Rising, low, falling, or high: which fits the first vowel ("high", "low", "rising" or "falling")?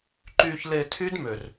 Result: low